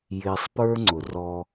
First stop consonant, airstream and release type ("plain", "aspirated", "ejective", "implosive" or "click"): plain